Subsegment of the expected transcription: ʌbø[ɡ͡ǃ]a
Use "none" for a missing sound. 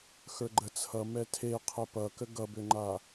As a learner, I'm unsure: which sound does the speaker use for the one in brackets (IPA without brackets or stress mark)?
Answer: ŋ͡ǃ